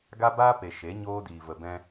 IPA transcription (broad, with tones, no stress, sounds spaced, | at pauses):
ɡ a˦ b aː˦ p e˨ ʃ e˨˦ ɲ oː˦ d iː˧ v ə˧ b ɛ̃˦